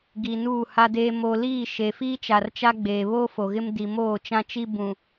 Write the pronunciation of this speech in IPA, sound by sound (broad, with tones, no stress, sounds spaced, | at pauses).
ɡ i˨ n uː˦˨ h a˦ d eː˦ m o˨ l iː˦˨ ʃ e˨ f iː˦ t͡ʃ a˨ r t͡ʃ a˦ ɡ͡b eː˨ β oː˦ f o˨ ɣ ɪ˦ m d i˨ m oː˦˨ t͡ʃ ã˦ t͡ʃ i˦ b ũ˨